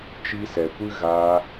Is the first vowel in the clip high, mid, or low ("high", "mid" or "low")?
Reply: high